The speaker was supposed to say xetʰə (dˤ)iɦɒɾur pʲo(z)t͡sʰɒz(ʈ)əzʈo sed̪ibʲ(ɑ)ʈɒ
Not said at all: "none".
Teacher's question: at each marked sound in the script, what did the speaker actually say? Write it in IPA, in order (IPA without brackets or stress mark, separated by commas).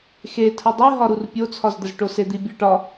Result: dˤ, none, d̪, ɒ